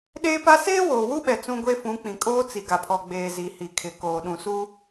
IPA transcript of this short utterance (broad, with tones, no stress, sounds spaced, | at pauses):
ɗ eː˦ p a˦ s eː˦ w oː˨ w u˦ ɓ ɛ˨ t͡s ũ˦ ɡʷ e˦ f ũ˨˦ k͡p ĩ˨ kʼ oː˦ t͡s i˨ ɡ a˨ pʰ ɔ˨ ɡ͡b eː˨ z i˨ h i˨ kʰ ɪ˨ k oː˨ ɗ ũ˨ s u˦